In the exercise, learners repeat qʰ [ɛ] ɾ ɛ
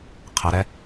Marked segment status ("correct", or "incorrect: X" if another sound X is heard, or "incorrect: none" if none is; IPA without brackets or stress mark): incorrect: ə